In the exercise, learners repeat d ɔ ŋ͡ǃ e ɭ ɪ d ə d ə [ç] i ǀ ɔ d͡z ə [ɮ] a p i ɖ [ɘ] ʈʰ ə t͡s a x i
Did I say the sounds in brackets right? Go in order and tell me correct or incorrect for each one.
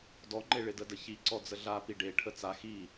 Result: correct, correct, incorrect: e

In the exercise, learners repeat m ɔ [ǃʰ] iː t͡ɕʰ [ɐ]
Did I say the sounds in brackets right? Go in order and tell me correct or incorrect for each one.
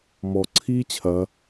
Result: incorrect: ǀʰ, correct

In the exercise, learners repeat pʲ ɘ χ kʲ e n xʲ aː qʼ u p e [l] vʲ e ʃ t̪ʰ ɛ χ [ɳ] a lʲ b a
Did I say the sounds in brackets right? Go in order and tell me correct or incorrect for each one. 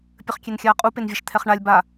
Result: incorrect: n, correct

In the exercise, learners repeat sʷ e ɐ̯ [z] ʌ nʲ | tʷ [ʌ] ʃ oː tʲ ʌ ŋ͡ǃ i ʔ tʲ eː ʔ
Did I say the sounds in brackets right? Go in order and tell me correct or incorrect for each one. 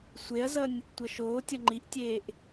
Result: correct, correct

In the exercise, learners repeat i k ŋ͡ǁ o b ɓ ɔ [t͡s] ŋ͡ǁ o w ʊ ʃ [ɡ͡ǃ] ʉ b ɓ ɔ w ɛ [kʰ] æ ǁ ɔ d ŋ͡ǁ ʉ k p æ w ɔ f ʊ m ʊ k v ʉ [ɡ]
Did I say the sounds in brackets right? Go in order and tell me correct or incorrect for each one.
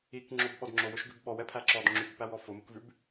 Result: incorrect: d, incorrect: ɡ, incorrect: pʰ, incorrect: b

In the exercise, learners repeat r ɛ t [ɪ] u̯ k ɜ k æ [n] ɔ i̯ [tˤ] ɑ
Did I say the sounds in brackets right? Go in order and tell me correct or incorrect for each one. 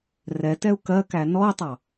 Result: incorrect: ɛ, correct, correct

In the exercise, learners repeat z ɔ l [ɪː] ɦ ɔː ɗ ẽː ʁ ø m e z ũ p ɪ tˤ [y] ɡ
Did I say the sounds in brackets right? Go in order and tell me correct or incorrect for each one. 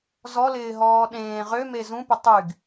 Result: correct, correct

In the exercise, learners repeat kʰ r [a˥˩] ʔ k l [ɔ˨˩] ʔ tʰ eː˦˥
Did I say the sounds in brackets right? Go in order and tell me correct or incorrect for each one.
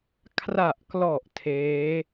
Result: incorrect: a˨˩, correct

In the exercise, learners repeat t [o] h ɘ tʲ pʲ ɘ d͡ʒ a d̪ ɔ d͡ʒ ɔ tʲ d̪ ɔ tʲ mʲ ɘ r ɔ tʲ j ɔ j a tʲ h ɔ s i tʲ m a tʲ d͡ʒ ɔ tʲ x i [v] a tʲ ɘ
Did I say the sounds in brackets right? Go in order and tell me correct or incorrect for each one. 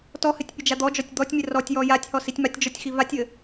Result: incorrect: ɔ, correct

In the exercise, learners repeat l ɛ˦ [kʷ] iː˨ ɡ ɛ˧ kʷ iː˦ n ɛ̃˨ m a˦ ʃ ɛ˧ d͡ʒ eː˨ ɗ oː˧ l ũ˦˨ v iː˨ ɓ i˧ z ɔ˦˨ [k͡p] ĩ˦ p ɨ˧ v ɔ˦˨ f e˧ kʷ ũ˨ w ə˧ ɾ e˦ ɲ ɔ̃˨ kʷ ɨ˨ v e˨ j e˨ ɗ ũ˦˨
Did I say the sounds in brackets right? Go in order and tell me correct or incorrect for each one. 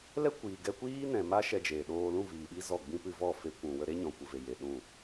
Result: correct, incorrect: ɡ͡b

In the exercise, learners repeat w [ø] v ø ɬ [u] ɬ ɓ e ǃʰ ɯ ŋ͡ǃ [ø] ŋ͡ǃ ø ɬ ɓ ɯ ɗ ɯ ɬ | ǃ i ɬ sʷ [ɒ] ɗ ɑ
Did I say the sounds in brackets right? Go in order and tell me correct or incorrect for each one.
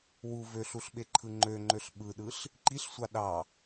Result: incorrect: u, correct, correct, incorrect: ɑ

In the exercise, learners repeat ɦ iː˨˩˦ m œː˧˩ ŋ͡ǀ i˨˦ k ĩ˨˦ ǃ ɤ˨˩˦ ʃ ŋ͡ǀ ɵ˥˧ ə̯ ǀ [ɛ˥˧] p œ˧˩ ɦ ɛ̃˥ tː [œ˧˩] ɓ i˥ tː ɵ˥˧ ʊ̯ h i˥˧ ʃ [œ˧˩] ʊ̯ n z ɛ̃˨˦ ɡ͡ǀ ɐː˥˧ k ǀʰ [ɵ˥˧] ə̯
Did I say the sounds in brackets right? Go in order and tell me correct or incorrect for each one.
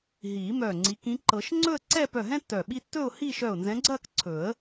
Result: correct, correct, correct, incorrect: ɵ˨˩˦

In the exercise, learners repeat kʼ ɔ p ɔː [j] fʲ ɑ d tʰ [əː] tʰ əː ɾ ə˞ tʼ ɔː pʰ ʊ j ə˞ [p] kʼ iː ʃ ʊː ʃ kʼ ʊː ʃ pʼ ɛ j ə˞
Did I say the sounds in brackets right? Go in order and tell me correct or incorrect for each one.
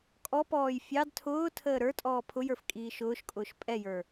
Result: correct, incorrect: ʊː, incorrect: f

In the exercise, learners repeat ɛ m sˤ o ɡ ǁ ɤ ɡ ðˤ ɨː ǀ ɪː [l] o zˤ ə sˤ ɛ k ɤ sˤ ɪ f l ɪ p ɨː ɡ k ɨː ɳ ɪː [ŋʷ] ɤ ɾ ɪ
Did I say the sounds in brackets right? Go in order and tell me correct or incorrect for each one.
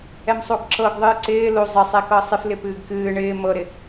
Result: correct, incorrect: m

